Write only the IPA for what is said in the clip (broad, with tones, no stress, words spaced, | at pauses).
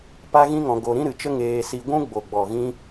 pa˦ɣĩ˦ŋɔ̃˧ ɡo˧ɾĩ˦ɾɨ˧t͡ʃə˦ ŋeː˧si˧ɡʷũ˦ ɡ͡bo˨ɡ͡bɔ˨ɣĩ˧